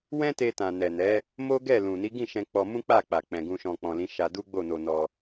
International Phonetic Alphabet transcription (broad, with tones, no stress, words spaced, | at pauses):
wɛ̃˦te˧tã˨ nɛ˨nɛ˨˦ | mo˦ɡɛ˦˨ lũ˨ ni˨˦ɡĩ˦˨ʃɛ̃˧ k͡pɔ˧mũ˦k͡pa˦˨k͡pa˨ k͡pɛ̃˨ɡũ˧ʃɔ̃˧ k͡pɔ̃˨lĩ˨˦ʃa˧ du˦ɡ͡bo˦˨no˧nɔ˧